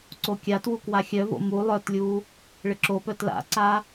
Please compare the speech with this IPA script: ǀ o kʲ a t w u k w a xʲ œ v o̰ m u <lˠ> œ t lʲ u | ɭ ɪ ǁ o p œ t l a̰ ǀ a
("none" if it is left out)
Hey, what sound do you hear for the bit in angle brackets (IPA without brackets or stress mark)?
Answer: lˠ